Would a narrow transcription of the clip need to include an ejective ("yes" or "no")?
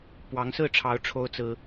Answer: no